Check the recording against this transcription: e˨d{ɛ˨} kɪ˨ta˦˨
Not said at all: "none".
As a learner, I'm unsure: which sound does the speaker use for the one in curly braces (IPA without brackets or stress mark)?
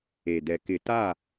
ɛ˨